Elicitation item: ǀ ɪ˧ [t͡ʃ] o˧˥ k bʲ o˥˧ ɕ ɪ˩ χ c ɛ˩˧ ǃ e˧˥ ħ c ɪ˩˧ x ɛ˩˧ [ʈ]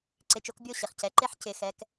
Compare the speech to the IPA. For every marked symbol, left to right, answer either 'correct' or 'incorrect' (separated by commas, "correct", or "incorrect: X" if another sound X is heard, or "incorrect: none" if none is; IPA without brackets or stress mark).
correct, incorrect: k